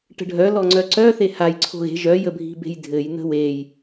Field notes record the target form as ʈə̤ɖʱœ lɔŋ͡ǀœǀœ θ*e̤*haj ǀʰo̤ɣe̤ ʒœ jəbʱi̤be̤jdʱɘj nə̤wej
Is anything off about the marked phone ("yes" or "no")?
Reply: yes